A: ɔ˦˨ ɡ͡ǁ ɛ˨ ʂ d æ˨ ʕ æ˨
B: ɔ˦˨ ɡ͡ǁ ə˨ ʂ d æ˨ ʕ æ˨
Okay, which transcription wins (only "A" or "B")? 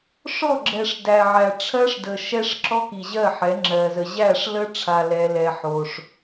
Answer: A